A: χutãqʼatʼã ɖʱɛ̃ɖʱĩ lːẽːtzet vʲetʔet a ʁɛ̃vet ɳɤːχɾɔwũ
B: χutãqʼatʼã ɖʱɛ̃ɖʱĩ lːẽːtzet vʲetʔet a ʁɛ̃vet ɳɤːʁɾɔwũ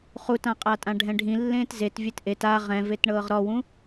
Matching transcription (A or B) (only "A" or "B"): B